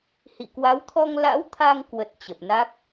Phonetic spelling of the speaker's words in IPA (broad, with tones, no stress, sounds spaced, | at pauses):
h ḭ˧˨ k w a˨˦ w t̪ʰ ɔ˧ ŋ l a̰˧˥ w t̪ʰ a˧ ŋ k w ə˨˩ t̚ t͡ɕ ə˨˩ p̚ n a˦˥ k̚